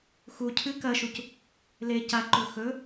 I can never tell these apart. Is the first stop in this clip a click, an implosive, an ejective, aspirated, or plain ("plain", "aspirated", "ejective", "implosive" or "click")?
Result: aspirated